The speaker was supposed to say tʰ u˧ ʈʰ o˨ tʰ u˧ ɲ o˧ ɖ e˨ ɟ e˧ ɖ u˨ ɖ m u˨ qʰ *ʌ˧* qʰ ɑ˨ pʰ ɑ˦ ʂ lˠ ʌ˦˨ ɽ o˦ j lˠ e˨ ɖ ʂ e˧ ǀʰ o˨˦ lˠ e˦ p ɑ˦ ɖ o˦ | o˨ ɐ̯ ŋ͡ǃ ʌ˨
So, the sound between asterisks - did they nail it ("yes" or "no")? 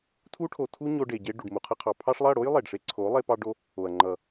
yes